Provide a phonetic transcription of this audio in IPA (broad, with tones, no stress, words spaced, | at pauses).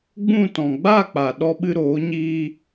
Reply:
ɡ͡bũ˦˨ tɔ̃˨ɡ͡ba˦˨k͡pa˨ ɗɔ˧ɓɨ˧ ɾoː˨˦ ɲiː˧